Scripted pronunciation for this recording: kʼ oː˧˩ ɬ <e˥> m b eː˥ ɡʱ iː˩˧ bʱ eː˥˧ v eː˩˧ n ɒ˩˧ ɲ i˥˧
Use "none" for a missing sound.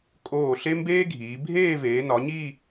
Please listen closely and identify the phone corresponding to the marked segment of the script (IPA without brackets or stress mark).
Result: e˥